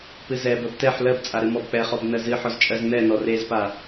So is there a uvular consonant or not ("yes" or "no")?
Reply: yes